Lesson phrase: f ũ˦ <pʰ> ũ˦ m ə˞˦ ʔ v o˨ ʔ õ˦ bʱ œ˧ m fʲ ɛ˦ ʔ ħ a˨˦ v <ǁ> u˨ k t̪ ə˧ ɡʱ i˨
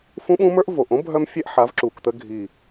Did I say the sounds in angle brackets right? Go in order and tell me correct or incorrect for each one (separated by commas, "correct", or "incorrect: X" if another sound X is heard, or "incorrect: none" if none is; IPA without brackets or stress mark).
incorrect: ɓ, correct